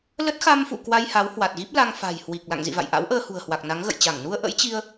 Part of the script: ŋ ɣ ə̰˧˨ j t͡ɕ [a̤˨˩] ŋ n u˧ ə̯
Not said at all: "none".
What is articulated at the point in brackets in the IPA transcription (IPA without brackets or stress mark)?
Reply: a˧˩